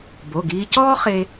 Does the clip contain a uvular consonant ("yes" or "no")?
yes